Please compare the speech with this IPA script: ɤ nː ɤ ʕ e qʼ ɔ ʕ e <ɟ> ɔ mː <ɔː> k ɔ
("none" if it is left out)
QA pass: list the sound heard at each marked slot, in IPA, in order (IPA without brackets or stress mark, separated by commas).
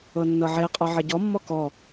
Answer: ɟ, ɔ